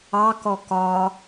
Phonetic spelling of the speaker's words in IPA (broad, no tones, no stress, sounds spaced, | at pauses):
ɑ k ɔ k ɒ